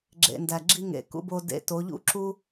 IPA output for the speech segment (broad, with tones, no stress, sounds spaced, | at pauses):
ɡ͡ǁ ḛ˨ n d æ˨ ɡ͡ǁ i˧ ŋ ḛ˨ k ṵ˧ b o˧ d ḛ˧ t o˨˦ ʎ ṵ˦ ǁ u˦